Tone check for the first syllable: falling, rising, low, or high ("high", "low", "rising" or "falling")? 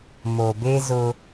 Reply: low